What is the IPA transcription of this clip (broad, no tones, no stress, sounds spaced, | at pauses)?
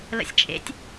l ə̰ sʲ t͡ʃʼ ḛ tʲ